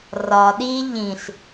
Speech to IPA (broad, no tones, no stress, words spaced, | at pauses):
rɒ ɗi ʎĩɬ